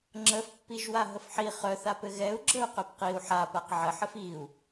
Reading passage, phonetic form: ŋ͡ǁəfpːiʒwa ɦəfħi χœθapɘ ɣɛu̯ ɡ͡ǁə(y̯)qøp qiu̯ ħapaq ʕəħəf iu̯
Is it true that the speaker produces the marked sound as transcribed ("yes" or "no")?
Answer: no